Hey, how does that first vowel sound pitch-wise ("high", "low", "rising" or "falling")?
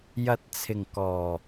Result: low